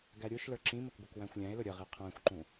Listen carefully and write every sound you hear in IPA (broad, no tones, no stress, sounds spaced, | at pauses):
ɡ æ ɾʲ u ʃ l ə˞ ǁ ĩ m ə k ɡʷ ə k w æ̃ xʷ lʲ æ̃ e̯ l ʊ ɾʲ ə ʁ i qʰ æ̃ xʷ ǃ ũ